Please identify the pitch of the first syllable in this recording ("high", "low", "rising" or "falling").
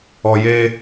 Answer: low